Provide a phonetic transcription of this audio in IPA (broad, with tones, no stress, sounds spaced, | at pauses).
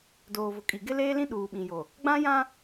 d oː˨ v ʊ˨ kʼ i˨ ɡ ɪ˦ l eː˦ l ĩ˦ ɗ uː˨ ɓ ĩ˨ j o˨ | ɡ͡b ã˦ j ã˦